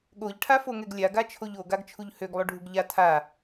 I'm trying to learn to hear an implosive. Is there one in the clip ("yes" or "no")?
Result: yes